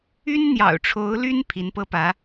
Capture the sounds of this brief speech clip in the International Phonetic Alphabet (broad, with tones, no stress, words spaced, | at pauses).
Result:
y˥nn̪jɑ̰˨˩ʊ̯ʈ͡ʂʰo˧˥ʊ̯ly˥n pʰi˧˥npɤ˥pä˧˥